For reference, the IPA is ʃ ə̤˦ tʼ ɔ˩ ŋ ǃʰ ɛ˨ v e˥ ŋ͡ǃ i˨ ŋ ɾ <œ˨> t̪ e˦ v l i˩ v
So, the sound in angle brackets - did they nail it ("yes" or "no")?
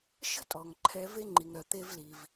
yes